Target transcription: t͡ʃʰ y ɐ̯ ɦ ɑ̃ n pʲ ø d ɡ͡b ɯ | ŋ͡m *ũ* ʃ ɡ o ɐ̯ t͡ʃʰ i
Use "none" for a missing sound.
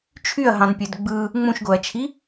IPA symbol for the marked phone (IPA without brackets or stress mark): ũ